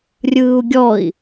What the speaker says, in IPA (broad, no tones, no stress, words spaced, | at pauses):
rʲɯːu̯ɡʲɔi̯